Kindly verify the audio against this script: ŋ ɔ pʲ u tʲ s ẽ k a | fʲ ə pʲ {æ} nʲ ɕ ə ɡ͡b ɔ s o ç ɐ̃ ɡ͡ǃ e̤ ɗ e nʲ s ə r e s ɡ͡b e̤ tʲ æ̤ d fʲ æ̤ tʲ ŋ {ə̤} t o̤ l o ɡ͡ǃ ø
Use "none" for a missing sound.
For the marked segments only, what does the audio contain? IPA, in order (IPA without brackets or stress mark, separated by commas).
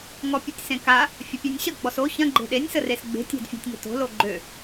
æ, ə̤